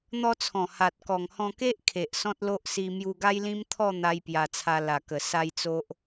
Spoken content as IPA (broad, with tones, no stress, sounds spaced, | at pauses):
n̪ ɔ˧ t͡sʰ ɔ̃˨˩ h a˨ t̚ k ɔ˨˩ ŋ h ɔ̃˧ k e˦ ʔ kʰ e˨ ʔ s ɔ̃˦ t̚ l o˦ ʔ s i˧ m j u˧ ɡ a˦ j l ĩ˦ m t̪ʰ ɔ˥˧ n̪ a˦ j p j a˧ t͡sʰ a˧ l a˨˩ k ə˨˩ s a˦ j t͡s o˦ ʔ